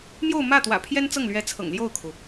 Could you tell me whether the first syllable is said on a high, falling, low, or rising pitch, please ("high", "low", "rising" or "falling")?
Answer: falling